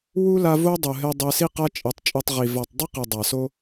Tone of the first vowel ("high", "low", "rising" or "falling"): high